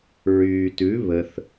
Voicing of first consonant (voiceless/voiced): voiced